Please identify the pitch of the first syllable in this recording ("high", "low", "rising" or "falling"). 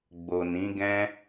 low